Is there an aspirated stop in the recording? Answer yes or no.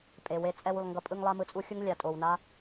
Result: no